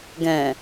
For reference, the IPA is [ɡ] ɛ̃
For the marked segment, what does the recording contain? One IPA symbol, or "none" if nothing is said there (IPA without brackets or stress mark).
ɡ